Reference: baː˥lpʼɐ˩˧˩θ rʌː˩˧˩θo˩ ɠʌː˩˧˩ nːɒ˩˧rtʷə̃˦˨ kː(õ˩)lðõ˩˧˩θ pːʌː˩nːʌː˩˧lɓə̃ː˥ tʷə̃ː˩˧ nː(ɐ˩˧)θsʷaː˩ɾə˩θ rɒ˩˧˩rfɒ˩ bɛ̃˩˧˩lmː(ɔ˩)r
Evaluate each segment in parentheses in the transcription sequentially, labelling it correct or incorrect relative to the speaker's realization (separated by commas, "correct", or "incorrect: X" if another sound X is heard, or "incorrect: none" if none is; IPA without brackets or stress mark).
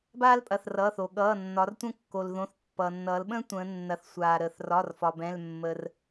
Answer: incorrect: o˩, correct, incorrect: ə˩